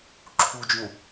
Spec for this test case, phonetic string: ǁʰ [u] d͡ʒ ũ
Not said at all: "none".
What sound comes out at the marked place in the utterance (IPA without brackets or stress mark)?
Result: u